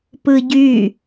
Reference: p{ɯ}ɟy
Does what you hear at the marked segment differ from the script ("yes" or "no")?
no